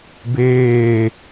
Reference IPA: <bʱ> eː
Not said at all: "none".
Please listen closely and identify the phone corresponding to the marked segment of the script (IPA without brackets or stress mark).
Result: b